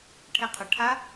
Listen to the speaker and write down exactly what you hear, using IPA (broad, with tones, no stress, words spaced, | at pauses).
ʈʰe˧qʰə˨˩ ʈʰa˦˥